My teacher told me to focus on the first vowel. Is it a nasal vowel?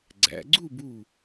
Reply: no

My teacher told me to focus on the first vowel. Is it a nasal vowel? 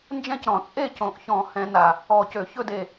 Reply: yes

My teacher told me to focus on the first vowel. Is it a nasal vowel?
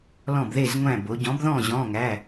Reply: yes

